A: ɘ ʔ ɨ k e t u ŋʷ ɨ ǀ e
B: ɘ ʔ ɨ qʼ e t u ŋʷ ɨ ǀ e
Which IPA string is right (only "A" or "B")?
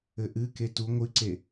A